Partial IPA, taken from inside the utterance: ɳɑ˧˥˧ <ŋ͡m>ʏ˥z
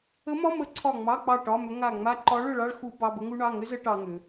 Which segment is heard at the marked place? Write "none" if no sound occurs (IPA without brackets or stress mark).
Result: ŋ